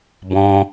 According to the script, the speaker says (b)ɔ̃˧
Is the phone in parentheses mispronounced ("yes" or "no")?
no